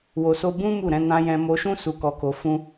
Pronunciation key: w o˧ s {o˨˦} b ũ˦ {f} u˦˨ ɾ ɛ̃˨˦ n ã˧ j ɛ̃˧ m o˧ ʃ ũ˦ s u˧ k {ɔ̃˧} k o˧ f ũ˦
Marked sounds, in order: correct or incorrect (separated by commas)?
incorrect, incorrect, incorrect